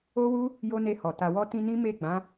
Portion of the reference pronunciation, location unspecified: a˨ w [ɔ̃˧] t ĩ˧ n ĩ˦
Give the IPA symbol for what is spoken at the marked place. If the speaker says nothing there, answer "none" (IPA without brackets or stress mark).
ɔ˧